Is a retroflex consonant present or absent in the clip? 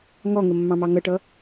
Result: present